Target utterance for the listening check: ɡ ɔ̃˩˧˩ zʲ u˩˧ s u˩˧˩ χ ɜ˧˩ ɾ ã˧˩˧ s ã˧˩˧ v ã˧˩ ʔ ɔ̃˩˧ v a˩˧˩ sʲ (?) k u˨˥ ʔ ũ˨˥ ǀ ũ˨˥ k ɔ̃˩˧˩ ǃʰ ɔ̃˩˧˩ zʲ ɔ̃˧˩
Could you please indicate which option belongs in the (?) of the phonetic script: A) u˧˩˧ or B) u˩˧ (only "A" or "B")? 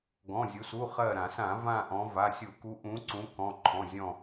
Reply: A